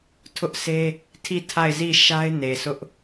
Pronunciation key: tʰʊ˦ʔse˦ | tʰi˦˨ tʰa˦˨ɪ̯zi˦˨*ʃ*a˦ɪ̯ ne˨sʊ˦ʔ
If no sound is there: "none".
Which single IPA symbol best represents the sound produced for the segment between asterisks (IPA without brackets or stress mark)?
ʃ